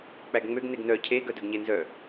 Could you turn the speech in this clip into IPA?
k͡p æ ɡ ŋ͡m ø ɡ n e ɡ n œ cʰ e ɡ œ d œ ɡ ɲ e n z œ

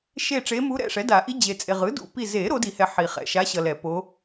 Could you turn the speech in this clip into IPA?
ʃ e˦˨ ʈ͡ʂ e˧˥ m u˧˥ ɾ ɛ̰˦˨ ʂ ɛ˩˥ d a˨˩˦ ʔ i˧˥ d͡ʑ e˨ t͡sʼ e˨ ʁ ɯ˩˥ d ṵ˦˨ p i˦˨ z e˨˩˦ ɾ o˩˥ d i˨˩˦ h ɛ˨ ħ i˨˩˦ χ ɛ̰˨ ʃ a˧˥ ɕ ʌ˨ l ɛ˨˩˦ p o˧˥

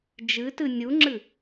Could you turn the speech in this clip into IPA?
d͡ʒ ɨ t ɨ nʲ u ŋ͡ǁ ɨ

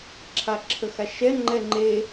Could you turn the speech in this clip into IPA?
ǁʰ a ǁʰ ə x a ʃ ɛ ŋ͡ǃ ɛ ŋ͡ǃ e

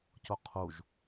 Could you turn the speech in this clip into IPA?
c o qʰ u ʒ

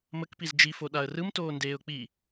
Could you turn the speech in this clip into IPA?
m ə k p i z d͡ʒ i f o ɗ a ə̯ r ɯ m t oː n d eː ʊ̯ k͡p i

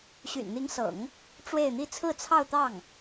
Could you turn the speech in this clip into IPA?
ɕ y̰˨˩ n n̪ i˧˥ ŋ s ɤ̰˨˩˦ ŋ | ʈ͡ʂ w e˥˧ ɪ̯ n̪ i˥˧ t͡sʰ ɹ̩˥˧ t͡sʰ ɑ˥˧ ʊ̯ t̪ ɑ˥˩ ŋ

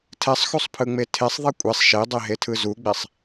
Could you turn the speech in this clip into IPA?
tʰ ɛ sˤ x u sˤ pʰ ɯ ŋ͡m e tʰ e sˤ ðˤ e kʷʼ e sˤ ʃ e dˤ e ɦ e tʰ ɯ z u ɡ͡b e sˤ

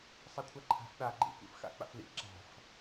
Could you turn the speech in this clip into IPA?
sˤ a kʷʰ a ǃʰ a̤ f ɗ a ɡ͡ǃ ḭ kʷ ḭ f x a̰ k͡p a̰ f l ḭ ǁ a̤ f

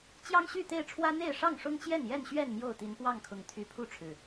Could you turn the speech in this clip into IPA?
t͡ɕ j ɑ˦ ŋ ɕ y˥˨ t̪ e˥˨ ɪ̯ ʈ͡ʂʰ w ä˦ n̪ e˥˨ ɪ̯ ʂ ɑ˥˨ ŋ ʂ ʊ˦ ŋ t͡ɕ j ɛ˥˨ n j ɛ˥˨ n ɕ ɥ ɛ˥˨ n m j o˥˨ ʊ̯ t̪ i˨˦ n p w ɑ˥˨ ŋ kʰ ʊ˨˩ ŋ t̪ʰ y˨˦ pʰ u˥˨ ʈ͡ʂʰ ɻ̩˨˩

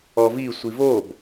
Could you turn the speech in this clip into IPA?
ɔ v i sʷ i v o b

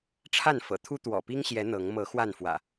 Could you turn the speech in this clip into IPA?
ʈ͡ʂʰ a˥˨ n f ɤ̰˨˩ t̪ʰ u˦ t̪ w ɔ̰˨˩ p i˦ ŋ ɕ j ɛ˨˦ n̪ ɤ˨˦ ŋ m ɤ˨˦ x w a˥˨ n f w ä̰˨˩

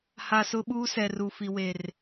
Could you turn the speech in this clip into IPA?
h a˨ s ʊ˦ ɓ uː˦ s ɛ˨ r u˨ f i˨ w e˨ r

